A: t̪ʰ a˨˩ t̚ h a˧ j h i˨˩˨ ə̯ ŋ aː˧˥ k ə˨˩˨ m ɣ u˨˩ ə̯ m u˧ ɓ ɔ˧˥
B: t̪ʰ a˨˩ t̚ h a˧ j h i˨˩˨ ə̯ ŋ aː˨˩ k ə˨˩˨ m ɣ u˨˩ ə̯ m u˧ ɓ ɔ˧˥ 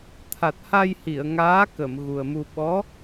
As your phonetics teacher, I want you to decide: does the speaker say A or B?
A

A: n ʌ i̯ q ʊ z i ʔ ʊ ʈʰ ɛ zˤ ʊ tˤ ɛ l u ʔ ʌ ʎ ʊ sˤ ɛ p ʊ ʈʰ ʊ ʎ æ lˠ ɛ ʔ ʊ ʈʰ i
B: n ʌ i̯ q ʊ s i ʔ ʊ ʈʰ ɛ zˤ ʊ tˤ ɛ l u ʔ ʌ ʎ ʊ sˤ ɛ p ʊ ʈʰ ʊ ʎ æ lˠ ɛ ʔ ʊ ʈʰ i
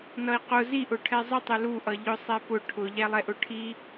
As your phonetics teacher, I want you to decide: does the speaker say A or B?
A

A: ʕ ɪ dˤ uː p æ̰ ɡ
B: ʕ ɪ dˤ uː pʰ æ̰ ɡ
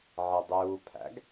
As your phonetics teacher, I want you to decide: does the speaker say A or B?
B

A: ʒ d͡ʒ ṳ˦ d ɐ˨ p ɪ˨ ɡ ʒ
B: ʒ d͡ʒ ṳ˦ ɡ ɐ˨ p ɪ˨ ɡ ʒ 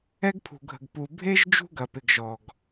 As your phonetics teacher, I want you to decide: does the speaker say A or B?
B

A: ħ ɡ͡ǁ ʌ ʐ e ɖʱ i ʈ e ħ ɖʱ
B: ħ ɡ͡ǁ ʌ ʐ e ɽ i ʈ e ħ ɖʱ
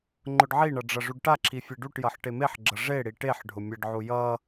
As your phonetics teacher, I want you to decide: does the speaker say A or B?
B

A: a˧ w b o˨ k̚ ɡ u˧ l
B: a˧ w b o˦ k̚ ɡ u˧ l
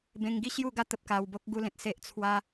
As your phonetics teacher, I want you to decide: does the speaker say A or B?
B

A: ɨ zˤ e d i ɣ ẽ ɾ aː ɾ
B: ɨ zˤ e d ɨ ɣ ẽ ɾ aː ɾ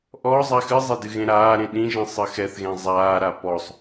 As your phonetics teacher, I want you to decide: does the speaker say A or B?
B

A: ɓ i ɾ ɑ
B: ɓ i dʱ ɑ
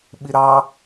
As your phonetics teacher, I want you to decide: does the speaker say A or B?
A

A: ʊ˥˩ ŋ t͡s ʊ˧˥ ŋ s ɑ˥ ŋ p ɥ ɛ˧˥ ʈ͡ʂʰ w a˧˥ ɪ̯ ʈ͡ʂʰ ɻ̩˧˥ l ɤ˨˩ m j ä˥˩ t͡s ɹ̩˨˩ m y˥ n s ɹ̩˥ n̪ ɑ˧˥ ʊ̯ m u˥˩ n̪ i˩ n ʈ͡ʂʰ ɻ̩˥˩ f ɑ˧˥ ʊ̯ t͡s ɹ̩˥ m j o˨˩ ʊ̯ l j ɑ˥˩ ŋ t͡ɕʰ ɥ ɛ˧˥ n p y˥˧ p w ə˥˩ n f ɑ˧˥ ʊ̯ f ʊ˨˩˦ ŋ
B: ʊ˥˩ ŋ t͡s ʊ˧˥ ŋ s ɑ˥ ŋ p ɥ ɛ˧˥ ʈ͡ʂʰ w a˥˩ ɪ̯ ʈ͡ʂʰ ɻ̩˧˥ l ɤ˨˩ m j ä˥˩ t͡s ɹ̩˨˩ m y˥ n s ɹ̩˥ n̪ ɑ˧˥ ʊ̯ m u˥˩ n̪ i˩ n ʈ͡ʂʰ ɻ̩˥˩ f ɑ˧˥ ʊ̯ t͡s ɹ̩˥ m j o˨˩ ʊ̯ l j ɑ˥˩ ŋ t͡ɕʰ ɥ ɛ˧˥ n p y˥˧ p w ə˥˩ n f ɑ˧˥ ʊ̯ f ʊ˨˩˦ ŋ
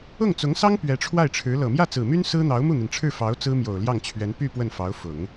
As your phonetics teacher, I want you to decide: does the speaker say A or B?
B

